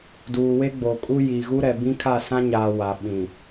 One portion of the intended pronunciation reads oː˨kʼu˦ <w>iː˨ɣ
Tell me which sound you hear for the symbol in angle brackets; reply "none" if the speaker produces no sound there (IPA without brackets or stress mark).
j